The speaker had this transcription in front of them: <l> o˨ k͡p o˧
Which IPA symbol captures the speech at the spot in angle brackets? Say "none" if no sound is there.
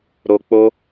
ɾ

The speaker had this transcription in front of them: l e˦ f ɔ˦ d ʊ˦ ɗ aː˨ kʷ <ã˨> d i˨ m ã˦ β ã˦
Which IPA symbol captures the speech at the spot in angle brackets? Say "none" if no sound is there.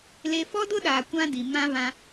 ã˦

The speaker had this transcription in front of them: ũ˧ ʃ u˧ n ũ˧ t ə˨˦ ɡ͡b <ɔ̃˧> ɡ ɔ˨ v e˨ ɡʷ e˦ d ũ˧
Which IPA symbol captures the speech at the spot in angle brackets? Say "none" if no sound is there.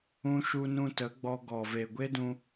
ɔ˧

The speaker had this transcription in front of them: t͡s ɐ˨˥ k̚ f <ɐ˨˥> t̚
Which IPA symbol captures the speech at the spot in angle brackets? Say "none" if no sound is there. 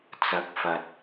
ɐ˨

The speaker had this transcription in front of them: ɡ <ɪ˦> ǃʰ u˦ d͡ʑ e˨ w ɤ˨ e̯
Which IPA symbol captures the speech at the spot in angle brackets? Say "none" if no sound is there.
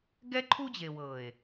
ɛ˦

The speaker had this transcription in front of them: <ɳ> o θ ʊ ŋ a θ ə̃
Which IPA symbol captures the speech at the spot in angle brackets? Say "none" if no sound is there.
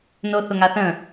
n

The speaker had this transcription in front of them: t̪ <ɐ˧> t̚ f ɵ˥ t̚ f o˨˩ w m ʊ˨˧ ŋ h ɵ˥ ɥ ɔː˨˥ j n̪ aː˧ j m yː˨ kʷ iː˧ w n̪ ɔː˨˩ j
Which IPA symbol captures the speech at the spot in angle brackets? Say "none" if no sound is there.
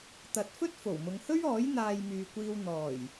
ɐ˨˥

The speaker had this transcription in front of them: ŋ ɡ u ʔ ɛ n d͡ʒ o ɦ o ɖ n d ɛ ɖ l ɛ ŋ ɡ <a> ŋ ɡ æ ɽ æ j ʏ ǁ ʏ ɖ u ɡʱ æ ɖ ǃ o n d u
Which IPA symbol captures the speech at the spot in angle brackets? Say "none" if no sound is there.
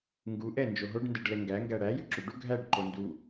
æ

